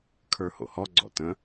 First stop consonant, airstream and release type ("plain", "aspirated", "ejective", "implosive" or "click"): aspirated